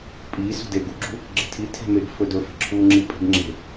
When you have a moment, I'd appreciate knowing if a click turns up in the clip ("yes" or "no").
yes